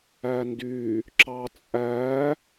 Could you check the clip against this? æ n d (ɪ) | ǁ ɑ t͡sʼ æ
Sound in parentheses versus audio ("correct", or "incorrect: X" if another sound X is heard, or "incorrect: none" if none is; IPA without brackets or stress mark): incorrect: y